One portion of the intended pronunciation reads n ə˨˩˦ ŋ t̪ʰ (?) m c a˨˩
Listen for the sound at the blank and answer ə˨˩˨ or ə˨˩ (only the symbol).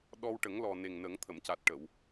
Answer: ə˨˩˨